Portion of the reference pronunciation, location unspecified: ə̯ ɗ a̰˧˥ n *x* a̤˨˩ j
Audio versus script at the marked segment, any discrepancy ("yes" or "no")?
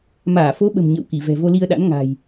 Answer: yes